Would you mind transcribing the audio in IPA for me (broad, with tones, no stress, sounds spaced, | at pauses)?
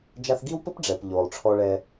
d͡ʒ a˧ θ ɡ i˦ w p ɘ˦ p ɖ͡ʐ ɛ˨ p ʎ oː˨ lˠ ʈ͡ʂʰ ɔ˧ ɭ ɛ˧